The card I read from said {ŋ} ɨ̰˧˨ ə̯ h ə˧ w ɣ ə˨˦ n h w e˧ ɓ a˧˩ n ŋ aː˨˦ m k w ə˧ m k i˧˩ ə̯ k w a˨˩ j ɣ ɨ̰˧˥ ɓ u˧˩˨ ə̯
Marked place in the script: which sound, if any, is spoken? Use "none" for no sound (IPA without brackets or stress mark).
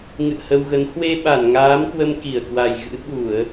ŋ